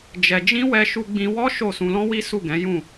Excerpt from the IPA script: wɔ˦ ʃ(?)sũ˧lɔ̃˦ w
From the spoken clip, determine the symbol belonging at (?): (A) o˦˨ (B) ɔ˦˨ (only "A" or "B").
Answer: A